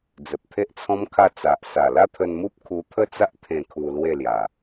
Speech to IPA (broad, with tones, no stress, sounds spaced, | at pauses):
d͡z ə˨ p̚ t̪ʰ e˦ ʔ t͡sʰ ɔ̃˦ m kʰ a˥˧ t͡s a˨ ʔ s a˨˩ l a˥˧ t̪ʰ ə˧ n m u˦ p̚ kʰ u˧ t̪ʰ ə˥˧ t͡s a˦ ʔ t̪ʰ ẽ˧ kʰ u˧ l w e˥˧ l j a˨˩